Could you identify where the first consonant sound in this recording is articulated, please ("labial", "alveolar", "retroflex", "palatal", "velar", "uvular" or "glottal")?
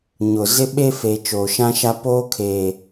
palatal